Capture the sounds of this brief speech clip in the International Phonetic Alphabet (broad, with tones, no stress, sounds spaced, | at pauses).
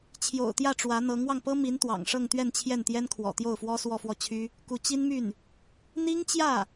t͡ɕʰ j o̰˨˩ ʊ̯ t̪ j ä˥˩ ʈ͡ʂ w ä˧˥ n̪ ɤ˧˥ ŋ w ɑ˧ ŋ p ɤ˥ m i˧˥ n t̪ w ɑ̰˨˩ ŋ ʂ ɤ˥˧ ŋ t̪ ɥ ɛ˥˧ n t͡ɕʰ j ɛ˥˩ n t̪ j ɛ˥ n kʰ w ɔ̰˨˩ t̪ j o˥˩ ʊ̯ f w ɔ˥ s w ɔ˥˧ f w ɔ˥˩ t͡ɕʰ y˥ | k u˧˥ t͡ɕ i˥ n m y˥˩ n | n̪ i˥ ŋ t͡ɕ j ä˥˩